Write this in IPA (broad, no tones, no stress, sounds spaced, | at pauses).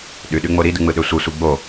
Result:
ɗ y ɗ y ŋ͡m o ɾ i d ɯ ŋ͡m ɯ ɗ ø sʷ ɯ sʷ i ɡ͡b o